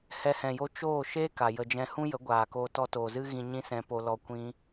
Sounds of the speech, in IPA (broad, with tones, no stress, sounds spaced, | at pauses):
h ɛ˧ h ɛ̃˨ j o˦ t͡ʃ oː˦˨ ʃ e˦ k a˨ j ə˧ d͡ʒ ɛ̃˦ h ũ˦ j ə˨˦ ɡʷ aː˨ k oː˧ t ɔ˧ t oː˨ z ɨ˦ ɣ ĩ˧ ɲ ĩ˦ s ɛ̃˧ p o˧ l ɔ˧ kʷ ĩ˦